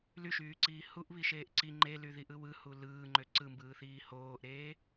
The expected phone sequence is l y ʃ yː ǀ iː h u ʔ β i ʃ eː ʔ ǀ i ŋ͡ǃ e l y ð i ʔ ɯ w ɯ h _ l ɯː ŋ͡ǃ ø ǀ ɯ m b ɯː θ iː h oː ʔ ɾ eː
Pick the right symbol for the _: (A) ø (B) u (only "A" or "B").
B